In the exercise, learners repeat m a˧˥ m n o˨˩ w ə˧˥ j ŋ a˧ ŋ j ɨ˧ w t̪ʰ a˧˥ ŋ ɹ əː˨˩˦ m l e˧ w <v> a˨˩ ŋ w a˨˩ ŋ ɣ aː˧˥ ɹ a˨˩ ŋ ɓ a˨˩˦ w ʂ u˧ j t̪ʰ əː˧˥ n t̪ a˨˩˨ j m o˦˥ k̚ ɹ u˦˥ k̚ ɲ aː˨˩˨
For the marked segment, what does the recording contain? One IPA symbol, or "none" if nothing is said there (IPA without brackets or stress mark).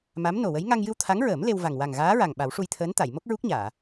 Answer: v